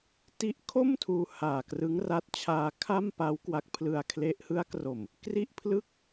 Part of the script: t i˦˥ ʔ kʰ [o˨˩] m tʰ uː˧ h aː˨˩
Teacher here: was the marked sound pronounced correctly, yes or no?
no